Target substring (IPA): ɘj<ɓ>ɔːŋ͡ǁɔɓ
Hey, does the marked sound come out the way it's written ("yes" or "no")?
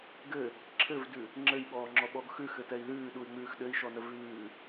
yes